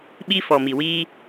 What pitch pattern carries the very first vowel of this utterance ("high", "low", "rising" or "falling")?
high